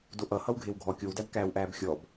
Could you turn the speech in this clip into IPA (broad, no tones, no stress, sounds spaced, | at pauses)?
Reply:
d o ʔ ʌ h ʌ w ɡʱ e w ɡʱ ɔ kʲ o w d æ b k æː w ʔ æː b xʲ ɔ b